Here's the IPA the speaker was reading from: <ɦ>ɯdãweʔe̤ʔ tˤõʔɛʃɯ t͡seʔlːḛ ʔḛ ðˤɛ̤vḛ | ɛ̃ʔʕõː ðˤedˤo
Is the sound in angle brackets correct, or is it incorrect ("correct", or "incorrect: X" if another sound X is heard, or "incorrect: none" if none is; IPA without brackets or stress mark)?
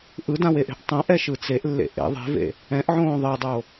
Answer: incorrect: ʔ